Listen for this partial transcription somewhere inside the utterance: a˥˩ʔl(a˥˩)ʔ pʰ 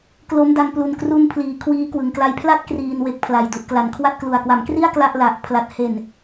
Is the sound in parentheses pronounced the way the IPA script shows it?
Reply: no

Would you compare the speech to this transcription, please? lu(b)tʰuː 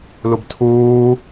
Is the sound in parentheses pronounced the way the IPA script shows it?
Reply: yes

